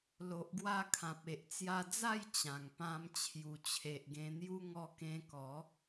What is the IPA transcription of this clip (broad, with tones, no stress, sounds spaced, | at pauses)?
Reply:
l o˨ ʔ ɡ w a˧ kʰ ã˨ p̚ e˨ ʔ t͡s j a˧ d͡z a˥˧ j t͡ɕ ã˨˩ ŋ p ã˧ m t͡ɕʰ j u˨˩ t͡ɕʰ e˨ ʔ ɡ ẽ˧ n̪ j u˦ ŋ ɔ˧ k ẽ˧ k ɔ˨˦